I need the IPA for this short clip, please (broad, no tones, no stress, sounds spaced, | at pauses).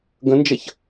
ɡ ə̃ n d͡ʒ ɐ ç